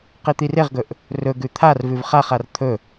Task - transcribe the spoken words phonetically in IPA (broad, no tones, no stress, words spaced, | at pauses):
qit̪ireʁɡɵʔ | rɵɡʉ t̪ʰarvʉv χaχar t̪ʰɵ